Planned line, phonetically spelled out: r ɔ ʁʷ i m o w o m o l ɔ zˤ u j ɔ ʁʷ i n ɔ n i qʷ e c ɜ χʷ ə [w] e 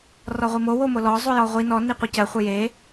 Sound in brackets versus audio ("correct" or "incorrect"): incorrect